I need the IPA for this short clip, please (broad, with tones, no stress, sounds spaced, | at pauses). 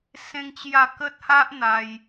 s ẽ˦ ŋ t͡ɕ j a˥˧ k ə˦ t̚ h a˦ ʔ n̪ a˧ j